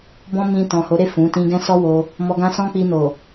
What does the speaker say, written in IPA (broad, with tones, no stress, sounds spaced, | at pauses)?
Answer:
b ɔ̃˧ m ĩ˧ t ɔ̃˨ h o˨˦ ɾ e˦˨ f ũ˨˦ t ĩ˦ ɡ ɛ̃˦ s ɔ˦ w o˧ | m ɔ˧ ɡ ã˦ s ɔ̃˦ k͡p i˧ n o˨